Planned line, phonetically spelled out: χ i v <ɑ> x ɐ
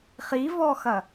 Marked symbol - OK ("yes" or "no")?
no